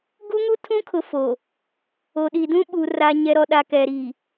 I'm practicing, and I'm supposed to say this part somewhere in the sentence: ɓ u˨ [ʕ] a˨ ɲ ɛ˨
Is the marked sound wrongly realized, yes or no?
yes